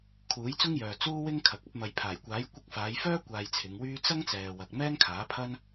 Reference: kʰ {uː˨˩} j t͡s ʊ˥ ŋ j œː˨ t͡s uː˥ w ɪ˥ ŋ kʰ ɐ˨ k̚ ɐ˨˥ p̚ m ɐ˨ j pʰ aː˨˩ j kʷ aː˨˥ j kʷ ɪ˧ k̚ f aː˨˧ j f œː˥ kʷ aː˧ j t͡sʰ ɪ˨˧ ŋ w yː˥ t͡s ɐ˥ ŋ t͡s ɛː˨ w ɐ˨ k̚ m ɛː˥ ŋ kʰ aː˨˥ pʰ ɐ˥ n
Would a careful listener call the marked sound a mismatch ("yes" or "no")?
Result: yes